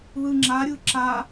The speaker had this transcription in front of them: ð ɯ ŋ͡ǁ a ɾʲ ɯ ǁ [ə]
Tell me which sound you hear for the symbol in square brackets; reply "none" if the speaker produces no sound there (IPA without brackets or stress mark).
a